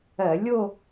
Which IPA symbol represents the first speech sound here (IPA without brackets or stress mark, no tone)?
ɜ